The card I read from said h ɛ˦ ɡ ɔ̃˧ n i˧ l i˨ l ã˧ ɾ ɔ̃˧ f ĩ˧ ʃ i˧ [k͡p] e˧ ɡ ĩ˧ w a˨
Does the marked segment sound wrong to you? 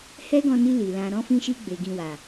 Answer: yes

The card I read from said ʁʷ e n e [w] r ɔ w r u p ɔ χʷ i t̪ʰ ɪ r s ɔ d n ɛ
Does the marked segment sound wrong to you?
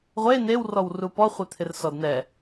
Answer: no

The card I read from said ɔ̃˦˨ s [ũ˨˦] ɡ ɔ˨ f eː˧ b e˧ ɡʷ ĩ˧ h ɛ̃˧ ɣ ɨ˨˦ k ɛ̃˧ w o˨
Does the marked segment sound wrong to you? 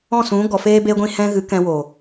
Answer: no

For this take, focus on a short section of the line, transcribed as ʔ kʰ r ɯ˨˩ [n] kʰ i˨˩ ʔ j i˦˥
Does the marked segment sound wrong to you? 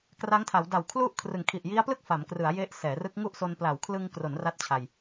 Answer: yes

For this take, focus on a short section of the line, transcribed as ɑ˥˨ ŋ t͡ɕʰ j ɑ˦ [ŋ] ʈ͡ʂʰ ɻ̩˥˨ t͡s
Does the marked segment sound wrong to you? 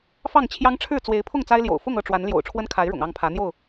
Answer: no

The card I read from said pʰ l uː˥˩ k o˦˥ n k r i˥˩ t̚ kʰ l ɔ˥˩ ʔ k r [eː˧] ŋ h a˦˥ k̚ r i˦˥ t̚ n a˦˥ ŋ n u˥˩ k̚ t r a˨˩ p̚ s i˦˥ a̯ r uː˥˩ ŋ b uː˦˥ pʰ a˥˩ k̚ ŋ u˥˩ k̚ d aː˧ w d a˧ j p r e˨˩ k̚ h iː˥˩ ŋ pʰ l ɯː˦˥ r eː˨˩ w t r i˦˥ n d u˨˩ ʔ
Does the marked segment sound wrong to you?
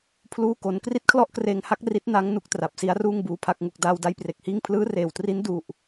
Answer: no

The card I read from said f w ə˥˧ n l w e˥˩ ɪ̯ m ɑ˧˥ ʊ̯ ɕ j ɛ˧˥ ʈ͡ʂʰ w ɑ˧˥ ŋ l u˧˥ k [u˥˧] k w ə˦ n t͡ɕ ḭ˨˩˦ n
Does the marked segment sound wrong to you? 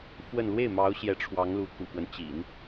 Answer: yes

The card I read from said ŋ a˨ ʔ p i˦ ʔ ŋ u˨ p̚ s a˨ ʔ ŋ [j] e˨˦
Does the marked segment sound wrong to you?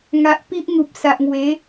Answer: yes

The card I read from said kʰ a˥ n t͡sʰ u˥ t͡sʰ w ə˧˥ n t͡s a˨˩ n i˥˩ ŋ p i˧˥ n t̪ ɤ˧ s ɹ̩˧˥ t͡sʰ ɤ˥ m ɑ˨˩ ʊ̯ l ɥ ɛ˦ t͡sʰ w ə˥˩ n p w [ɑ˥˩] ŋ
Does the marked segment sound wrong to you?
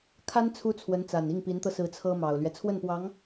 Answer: yes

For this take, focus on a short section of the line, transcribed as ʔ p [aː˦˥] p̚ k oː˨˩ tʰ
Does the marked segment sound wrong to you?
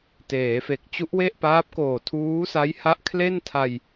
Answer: no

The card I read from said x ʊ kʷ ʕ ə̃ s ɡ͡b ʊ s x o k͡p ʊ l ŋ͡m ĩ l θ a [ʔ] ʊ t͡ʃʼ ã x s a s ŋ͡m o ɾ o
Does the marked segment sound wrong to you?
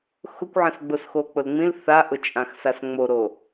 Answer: no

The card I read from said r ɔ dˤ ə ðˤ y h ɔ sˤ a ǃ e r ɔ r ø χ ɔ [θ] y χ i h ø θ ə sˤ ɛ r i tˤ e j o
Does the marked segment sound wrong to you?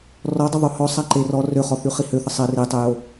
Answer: no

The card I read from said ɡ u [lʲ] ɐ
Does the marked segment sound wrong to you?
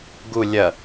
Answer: no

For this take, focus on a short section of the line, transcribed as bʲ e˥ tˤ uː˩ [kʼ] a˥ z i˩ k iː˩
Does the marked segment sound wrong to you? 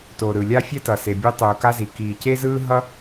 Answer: yes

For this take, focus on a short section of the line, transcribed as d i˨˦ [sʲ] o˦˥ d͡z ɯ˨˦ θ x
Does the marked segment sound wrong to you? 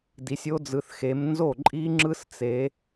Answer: no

